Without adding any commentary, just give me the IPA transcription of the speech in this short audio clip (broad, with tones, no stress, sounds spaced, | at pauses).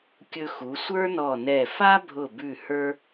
kʲ ɵ˧ x u˩˧ sʷ ə˞˥ n ɔ˧˩ n ɛ˧˩ f a˥ bʱ ʊ˧˩ b ʉ˧˩ h ə˞˧